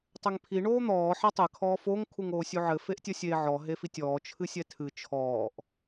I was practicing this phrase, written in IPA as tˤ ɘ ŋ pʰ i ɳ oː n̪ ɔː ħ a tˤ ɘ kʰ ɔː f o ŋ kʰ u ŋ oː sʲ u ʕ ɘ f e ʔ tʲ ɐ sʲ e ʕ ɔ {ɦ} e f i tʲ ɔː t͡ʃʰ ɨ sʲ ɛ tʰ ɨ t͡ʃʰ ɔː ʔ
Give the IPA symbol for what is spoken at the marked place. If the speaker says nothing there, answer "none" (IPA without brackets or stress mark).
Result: ɦ